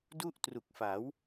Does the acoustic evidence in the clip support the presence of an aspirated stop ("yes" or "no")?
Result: no